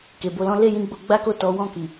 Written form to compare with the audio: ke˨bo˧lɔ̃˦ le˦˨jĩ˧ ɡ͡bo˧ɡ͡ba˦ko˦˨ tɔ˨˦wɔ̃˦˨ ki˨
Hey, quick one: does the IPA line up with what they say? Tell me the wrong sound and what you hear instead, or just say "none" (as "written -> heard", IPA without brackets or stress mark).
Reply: none